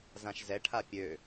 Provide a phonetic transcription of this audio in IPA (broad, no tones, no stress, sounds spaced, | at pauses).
z ã ʃ z ɛ ʈʰ a pʲ ø